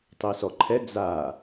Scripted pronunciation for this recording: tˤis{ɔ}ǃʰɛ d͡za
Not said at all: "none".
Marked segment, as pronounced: ɔ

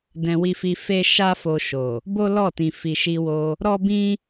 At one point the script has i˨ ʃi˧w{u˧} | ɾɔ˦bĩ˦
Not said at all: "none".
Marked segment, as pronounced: o˧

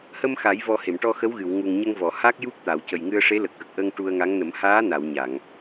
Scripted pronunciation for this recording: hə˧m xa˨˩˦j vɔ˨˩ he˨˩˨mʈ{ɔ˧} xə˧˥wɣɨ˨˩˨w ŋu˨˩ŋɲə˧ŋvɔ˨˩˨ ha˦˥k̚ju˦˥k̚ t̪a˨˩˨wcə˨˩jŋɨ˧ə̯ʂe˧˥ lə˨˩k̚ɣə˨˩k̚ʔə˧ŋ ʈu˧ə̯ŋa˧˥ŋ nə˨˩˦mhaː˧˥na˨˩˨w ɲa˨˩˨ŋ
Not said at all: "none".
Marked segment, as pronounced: ɔ˧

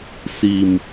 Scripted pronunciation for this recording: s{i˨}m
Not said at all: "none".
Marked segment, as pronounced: i˨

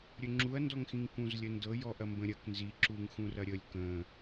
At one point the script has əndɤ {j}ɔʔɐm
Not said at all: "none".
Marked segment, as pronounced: j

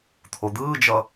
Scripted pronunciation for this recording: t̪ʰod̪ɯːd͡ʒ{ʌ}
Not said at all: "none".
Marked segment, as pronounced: ʌ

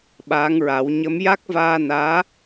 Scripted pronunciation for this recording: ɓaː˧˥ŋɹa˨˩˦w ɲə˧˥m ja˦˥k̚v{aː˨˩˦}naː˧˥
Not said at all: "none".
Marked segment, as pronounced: aː˧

